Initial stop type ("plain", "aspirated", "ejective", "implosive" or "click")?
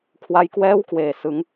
aspirated